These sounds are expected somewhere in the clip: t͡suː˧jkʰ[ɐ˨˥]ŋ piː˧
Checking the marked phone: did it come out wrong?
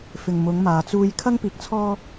yes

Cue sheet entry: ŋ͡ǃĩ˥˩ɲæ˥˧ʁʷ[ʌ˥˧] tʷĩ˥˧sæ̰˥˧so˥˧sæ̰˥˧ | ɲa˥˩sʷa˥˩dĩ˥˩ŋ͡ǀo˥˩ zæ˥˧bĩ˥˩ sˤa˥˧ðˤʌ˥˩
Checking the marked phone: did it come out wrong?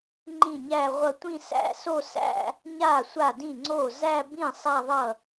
no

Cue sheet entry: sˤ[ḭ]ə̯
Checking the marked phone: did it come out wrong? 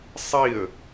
yes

